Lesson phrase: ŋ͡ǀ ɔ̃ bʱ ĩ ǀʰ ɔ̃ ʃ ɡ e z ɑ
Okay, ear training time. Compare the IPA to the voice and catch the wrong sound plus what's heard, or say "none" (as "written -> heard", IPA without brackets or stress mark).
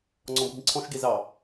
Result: none